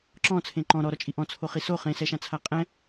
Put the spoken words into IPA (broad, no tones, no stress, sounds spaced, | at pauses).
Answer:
ǁ ɔ̃ t͡sʰ ẽ ǃ ɔ̃ ɾ ɔ ɾ ɔ t͡ʃʼ i ʔ ɔ̃ t͡sʰ o χ i s o χ ẽ s ɛ ʃ ã t͡sʰ a qʼ ɛ̃